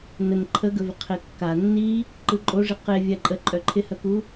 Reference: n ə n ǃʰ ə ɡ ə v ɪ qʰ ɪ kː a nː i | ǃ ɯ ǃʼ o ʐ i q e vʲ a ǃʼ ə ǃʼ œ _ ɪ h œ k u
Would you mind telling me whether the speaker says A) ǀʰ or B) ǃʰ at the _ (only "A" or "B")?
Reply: B